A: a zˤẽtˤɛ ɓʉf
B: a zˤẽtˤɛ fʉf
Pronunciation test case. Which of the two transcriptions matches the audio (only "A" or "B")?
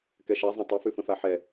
B